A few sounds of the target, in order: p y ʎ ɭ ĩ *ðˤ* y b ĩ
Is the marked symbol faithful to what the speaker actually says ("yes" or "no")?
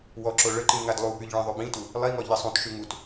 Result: yes